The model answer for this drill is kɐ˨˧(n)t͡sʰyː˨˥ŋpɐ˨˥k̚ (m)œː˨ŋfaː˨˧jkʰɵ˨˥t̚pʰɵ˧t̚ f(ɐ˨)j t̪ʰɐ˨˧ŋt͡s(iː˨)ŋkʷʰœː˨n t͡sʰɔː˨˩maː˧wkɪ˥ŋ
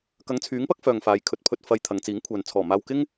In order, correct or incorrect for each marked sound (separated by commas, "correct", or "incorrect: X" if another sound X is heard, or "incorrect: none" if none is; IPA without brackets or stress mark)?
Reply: incorrect: ŋ, incorrect: f, correct, incorrect: iː˨˥